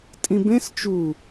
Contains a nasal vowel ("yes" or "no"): yes